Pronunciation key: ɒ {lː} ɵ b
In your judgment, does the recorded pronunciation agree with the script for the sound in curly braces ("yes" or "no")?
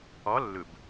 yes